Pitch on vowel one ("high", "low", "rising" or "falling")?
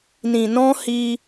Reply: low